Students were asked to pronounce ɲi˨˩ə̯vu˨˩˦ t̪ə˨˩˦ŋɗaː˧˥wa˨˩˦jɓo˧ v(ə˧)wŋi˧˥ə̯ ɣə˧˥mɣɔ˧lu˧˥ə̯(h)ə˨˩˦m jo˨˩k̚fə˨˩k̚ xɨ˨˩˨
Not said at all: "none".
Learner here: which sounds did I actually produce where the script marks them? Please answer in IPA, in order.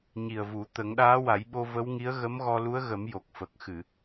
ə˧˥, ɣ

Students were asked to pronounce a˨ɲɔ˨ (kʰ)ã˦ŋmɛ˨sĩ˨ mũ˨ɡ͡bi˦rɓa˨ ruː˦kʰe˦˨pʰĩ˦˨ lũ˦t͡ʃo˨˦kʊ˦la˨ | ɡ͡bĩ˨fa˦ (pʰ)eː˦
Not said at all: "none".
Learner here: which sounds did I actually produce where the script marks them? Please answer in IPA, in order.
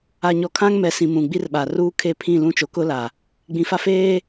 kʰ, f

